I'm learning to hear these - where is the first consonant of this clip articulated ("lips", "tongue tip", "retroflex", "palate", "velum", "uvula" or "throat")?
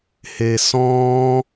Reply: throat